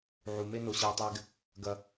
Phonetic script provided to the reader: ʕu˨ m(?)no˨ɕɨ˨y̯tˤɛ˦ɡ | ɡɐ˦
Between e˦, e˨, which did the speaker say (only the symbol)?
e˦